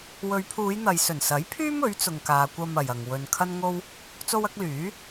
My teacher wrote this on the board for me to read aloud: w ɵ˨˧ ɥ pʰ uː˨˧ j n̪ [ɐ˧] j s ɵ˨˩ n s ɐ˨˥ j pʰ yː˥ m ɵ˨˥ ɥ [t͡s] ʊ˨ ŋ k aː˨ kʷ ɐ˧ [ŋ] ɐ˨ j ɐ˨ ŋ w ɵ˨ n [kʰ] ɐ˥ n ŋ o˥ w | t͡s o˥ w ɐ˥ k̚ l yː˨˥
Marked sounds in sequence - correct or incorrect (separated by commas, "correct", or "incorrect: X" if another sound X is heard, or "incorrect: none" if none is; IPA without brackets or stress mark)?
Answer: incorrect: ɐ˨, correct, incorrect: m, correct